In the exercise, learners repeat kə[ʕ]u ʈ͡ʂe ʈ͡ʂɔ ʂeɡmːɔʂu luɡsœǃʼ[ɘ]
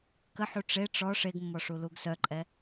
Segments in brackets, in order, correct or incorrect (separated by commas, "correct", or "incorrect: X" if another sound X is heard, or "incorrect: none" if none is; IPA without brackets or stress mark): incorrect: ħ, incorrect: ɛ